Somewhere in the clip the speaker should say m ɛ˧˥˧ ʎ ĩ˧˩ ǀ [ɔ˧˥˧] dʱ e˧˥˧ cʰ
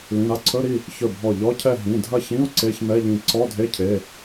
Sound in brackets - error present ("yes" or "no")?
no